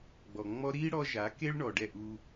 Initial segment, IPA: ɡ͡b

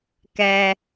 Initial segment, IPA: k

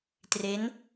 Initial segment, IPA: t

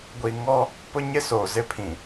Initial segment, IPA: ɡʷ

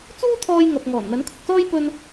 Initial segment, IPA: t͡s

